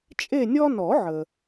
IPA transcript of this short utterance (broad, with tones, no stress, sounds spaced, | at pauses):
t͡ʃʼ e˦˨ nʲ ɔ˦ n ɔ˨˩˦ ʕ ə˩